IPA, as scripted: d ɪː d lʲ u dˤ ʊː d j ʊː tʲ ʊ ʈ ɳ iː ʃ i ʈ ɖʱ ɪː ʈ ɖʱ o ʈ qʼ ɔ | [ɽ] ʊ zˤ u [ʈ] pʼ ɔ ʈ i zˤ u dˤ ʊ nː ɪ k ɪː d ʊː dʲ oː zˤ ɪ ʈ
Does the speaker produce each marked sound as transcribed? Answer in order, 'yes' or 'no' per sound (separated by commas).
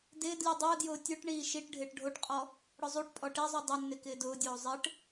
yes, yes